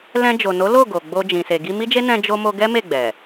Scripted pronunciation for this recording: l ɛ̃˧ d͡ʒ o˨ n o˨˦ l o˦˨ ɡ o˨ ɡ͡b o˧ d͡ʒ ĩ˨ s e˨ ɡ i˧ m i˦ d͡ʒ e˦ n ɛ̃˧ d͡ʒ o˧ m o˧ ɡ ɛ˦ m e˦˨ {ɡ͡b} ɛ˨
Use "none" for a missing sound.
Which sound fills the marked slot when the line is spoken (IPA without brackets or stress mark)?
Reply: ɡ͡b